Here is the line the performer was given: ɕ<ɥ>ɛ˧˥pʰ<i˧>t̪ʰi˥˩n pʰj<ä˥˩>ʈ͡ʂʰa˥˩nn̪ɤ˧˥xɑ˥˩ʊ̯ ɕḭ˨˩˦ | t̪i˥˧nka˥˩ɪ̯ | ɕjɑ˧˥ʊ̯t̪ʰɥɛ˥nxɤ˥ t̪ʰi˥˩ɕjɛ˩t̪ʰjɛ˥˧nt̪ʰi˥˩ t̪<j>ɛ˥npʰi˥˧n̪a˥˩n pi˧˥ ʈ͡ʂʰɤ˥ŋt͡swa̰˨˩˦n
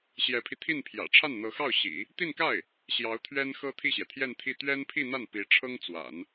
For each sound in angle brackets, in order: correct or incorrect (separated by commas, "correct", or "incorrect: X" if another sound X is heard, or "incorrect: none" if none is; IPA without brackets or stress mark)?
incorrect: j, correct, incorrect: ä̰˨˩, incorrect: ɥ